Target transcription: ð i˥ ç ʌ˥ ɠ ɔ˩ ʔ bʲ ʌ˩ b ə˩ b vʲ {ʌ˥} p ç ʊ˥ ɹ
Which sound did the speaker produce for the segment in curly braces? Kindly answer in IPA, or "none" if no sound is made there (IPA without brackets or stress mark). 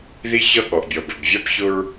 a˥